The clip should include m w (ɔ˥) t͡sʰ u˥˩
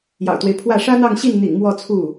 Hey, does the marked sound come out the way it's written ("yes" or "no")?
no